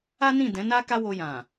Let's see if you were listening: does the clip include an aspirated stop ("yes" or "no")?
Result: no